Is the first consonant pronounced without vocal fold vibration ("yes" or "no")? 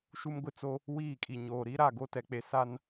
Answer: yes